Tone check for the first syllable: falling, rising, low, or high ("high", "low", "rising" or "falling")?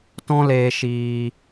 high